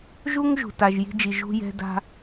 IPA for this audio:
ʒu˥ŋ ʒṳ˩ta˩ʒ ji̤˧d͡ʒi˩ ʒṳ˧jɛ̤˧da̤˧

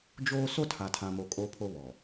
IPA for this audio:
d͡ʒoː˦ so˦tʰa˨tʰã˨mo˨ kʼo˦pʰo˦βɔ˨

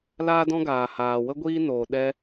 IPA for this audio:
laː˦dɔ̃˦ɡaː˨ haː˨wə˦ ɡʷiː˦noː˨ ɗɛ˧

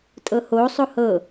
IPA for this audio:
tʼɤho sˤohɤ

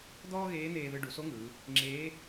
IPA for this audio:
d̪ɔː˥ɣeː˧˥n̪eː˧ðɯ˧ ɖu˩˧so˧˥ŋɯː˩˧ | ŋ͡ǁeː˧˥

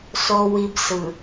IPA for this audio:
so˨wi˨b sɯ˨

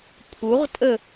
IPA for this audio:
pʰuʁtʼə

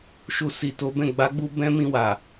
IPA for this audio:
ʃu˨si˨ to˨˦bɛ̃˦˨ ɡ͡ba˨˦ɡ͡bu˧ bɛ̃˦mĩ˧wa˨

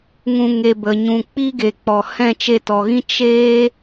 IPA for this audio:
ŋũ˧ŋe˧bə˨ ɲũ˨k͡pi˦ɡe˨k͡pɔ˨ hɛ̃˦˨t͡ʃe˧tɔ˨ɣĩ˦ t͡ʃe˦

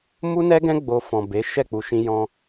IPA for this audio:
mu˦nɛ˦ɡɛ̃˦ ɡ͡bo˧ fɔ̃˨be˨˦ ʃɛ˦˨k͡pu˨ʃĩ˧ jɔ̃˧

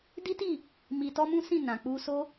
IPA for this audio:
di˦ti˦˨ | mi˧tɔ˦mũ˦sĩ˦˨ nã˨k͡pu˧so˦

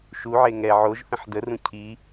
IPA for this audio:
ʃuʕe ŋɛ ʕoʒθə̃ħ dərũ cʰi

